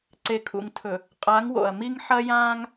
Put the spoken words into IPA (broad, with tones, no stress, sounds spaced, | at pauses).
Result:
ǀ e˨ kʰ ṵ˨ ŋ tʰ ɵ˨ | qʼ a˨˦ ŋ w o̰˨ ɐ̯ m i˦ ŋ ħ ɐ˦ j ãː˦ ŋ